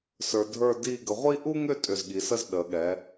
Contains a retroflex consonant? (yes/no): no